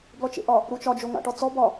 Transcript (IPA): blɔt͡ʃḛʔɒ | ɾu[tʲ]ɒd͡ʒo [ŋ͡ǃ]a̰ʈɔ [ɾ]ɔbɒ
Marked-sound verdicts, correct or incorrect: incorrect, incorrect, incorrect

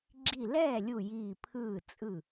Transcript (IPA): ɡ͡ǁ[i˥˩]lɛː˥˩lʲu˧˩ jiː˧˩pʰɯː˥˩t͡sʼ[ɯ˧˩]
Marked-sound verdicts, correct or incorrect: incorrect, incorrect

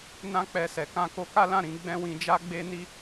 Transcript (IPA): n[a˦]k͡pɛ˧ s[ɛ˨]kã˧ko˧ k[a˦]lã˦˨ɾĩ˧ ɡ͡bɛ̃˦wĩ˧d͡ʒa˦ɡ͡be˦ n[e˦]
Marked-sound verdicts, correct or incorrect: incorrect, correct, correct, incorrect

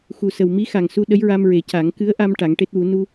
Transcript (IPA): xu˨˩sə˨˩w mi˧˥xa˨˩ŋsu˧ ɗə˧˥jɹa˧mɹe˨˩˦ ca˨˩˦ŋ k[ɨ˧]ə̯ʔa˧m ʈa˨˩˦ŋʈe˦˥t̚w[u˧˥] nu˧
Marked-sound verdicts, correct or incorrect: incorrect, correct

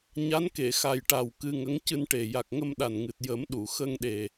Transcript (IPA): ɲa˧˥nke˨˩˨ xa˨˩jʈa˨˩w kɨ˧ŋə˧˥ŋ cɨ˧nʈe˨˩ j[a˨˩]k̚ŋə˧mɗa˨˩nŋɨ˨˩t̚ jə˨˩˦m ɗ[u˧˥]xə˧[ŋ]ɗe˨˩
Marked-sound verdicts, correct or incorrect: correct, incorrect, correct

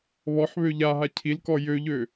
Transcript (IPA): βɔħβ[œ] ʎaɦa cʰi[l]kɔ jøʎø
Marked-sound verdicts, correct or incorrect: incorrect, correct

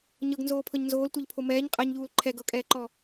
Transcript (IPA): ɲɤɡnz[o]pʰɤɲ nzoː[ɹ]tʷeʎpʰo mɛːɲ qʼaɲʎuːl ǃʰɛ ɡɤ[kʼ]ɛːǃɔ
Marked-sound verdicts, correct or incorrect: incorrect, incorrect, correct

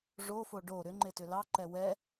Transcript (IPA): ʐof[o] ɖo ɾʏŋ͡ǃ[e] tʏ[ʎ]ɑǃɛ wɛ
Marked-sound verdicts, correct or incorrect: correct, correct, incorrect

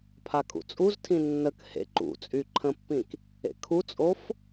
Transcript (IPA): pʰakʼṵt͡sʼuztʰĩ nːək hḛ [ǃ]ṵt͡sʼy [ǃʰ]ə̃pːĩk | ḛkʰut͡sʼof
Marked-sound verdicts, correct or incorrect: correct, correct

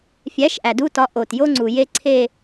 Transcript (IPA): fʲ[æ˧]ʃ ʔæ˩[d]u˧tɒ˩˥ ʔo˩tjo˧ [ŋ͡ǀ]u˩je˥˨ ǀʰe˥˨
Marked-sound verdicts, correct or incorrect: incorrect, correct, correct

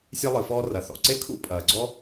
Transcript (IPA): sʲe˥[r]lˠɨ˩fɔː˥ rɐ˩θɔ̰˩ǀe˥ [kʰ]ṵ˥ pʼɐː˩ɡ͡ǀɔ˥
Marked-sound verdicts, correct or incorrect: incorrect, correct

